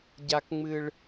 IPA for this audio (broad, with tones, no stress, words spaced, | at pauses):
ɟa˦kŋ͡mɨ˦ɭ